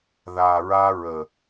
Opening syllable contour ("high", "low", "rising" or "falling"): low